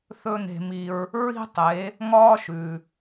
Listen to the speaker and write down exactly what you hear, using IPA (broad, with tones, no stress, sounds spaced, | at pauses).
θ ɵ˥ n̪ e̤˧ m i˧ ɹ | ɹ i̤˥ tˤ e˩˥ | ŋ ɒː˥ ʃ ʉ˩